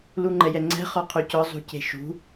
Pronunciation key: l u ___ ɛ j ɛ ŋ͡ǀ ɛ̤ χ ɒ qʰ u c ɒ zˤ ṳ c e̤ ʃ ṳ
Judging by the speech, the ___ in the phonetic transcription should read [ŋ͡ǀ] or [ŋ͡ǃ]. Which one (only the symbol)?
ŋ͡ǃ